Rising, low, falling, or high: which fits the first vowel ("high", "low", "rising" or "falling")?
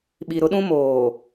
low